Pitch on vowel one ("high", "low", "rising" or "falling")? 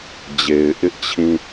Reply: low